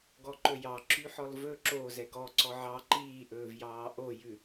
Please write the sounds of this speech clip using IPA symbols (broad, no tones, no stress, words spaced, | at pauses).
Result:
ɡɔǃɵjɑ ǁyħɔlvɵ ǁo zɛɡɔ ǀɔʕɑ ǃiːʔɵːvjɑː ʔojʉ